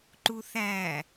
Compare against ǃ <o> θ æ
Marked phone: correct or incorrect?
incorrect